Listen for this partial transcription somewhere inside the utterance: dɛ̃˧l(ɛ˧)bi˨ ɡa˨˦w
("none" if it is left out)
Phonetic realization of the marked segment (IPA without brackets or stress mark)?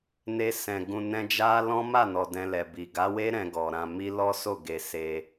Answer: ɛ˨